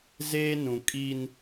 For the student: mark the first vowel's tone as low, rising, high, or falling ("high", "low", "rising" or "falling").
high